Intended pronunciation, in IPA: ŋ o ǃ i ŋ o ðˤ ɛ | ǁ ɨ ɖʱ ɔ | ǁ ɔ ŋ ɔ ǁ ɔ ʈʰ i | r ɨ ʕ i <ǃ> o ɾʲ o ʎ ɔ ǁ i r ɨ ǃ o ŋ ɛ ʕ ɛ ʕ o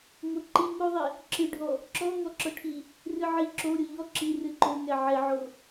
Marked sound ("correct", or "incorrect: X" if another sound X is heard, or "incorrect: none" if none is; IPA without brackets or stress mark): incorrect: ǁ